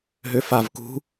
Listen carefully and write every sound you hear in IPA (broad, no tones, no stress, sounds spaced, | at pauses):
ɦ ø f a v k ṳ